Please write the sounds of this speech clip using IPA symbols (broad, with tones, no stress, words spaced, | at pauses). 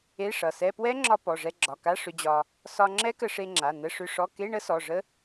e˧˥˧ʂʌ˩˧˩sɛ˧˥˧ pwɛ˦˥ŋ͡ǁɒ˧ pɔ˩˧˩ʐɛ˧ɡ͡ǁɒ˩˧˩ka˧˥˧ ʂʏ˧d͡ʑɒ˧ | sɒ˧ŋ͡ǁɛ˦˥kə˧ ʂe˧ŋ͡ǁa˩˧˩ nə˧˥˧ʂʏ˧˥˧ʂɔ˧˥˧ ke˧˥˧ɳə˦˥sɔ˩˧˩ ʐə˦˥